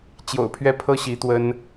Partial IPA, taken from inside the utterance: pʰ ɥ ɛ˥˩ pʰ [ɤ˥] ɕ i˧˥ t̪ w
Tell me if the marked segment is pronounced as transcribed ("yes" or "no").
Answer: yes